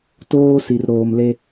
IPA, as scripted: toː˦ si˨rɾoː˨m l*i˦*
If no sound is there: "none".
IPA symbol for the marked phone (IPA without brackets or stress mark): e˦